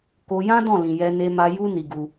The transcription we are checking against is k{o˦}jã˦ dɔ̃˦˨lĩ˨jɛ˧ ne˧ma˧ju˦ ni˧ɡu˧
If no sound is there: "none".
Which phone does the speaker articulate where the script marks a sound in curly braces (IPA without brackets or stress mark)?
o˧